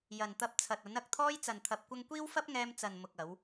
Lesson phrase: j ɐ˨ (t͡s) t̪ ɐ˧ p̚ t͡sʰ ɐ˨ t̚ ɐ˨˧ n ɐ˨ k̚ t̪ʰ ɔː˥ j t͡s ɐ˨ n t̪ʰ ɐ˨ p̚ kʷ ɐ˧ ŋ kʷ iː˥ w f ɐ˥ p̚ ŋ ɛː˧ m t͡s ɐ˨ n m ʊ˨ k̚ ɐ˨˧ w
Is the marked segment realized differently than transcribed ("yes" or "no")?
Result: yes